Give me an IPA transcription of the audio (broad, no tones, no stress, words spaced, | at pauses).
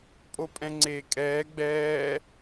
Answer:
pʼopʼɛ̃ŋ͡ǀeːkʼɛː ɡ͡bɛː